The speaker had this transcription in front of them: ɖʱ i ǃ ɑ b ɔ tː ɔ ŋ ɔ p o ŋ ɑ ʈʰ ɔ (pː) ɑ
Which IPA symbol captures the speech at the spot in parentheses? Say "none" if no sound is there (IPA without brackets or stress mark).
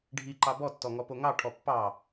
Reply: pː